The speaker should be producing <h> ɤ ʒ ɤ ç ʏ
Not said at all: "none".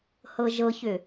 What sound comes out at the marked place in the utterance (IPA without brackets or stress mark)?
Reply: h